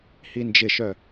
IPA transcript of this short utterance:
h i n d͡ʒ ɪ ʃ œ

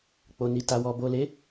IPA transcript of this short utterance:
k͡p o˨ n i˨ t a˨ w ɔ˨ b o˨ l e˨˦

